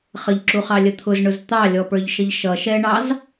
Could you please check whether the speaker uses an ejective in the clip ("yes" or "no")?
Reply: no